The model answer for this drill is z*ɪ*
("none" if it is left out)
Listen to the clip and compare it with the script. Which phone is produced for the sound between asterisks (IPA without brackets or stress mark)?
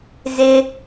ɪ